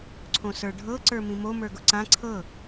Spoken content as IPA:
ǀʰ õ s ə˞ ɖʱ ɤ ǀ ə˞ m ĩ m o m ə˞ ɡ ʊ ǀ ã ǀʰ ɤ

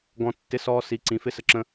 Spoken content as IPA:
ɡ ɔ̃˧ tː ɪ˧˥˧ s ɔː˧ s i˨˥ ǀ ĩ˨˥ f ɪ˧˥˧ s ə˧ ǁ ə̃˧

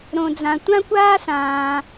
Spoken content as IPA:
ɾ õ˧ d͡z ã˧ tʷ ã˦ kʷ aː˦ s ãː˧

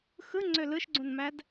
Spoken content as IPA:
x ɯ ŋ͡ǀ ø l ɯ ʃ ɡ͡ǀ ũ n m æ d

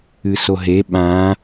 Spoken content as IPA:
ɨ s o ɦ e ɓ ã

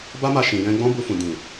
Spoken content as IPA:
b a˦ m a˧ ʃ ĩ˨ j ɛ̃˧ ɡ͡b ɔ̃˦ b u˧ f ũ˨ d ĩ˨

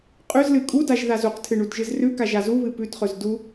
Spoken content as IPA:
qʼ ʉ z l ɨ kʼ u d a ʒ ð a z u q tʰ ɨ ɳ u d ʒ ɨ z r ʉ k a ʒ a z u β ɨ p ʉ t χ ɵ z d u

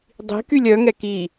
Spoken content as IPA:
dˤ i̤ k y lʲ œ ŋ ɛ k i

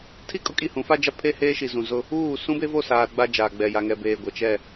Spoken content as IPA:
tʰ i˦ kʼ ʊ˦ kʼ i˦˨ h ũ˨˦ f a˦ d͡ʒ a˦ pʰ e˦ h eː˦ ʃ i˨ z ũ˨ z ʊ˦ | uː˦˨ s ũ˦ b e˦ v o˦˨ s aː˨ ɾ ʊ˦ ɡ͡b a˦ d͡ʒ aː˨ ɡ͡b ɛ˨ j a˨ ŋ ɛ˨ b eː˨ ɡʷ ɛ˨ t͡ʃ ɛ˦˨

